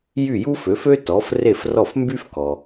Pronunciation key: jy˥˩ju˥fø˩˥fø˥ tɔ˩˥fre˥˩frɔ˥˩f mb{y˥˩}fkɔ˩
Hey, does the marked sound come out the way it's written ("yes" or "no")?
no